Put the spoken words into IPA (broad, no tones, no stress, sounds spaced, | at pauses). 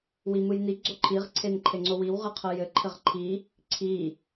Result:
w i m ɯ j n i ɡ͡ǀ o ǃʰ i ʁ ǀʰ e n ǃʰ e ŋ͡ǀ o w i w ʁ ɨ qʰ ɤ j ɘ ǃʰ ɘ ʁ ǃʰ i | ǀʰ i